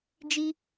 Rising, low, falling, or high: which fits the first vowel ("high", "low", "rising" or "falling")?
high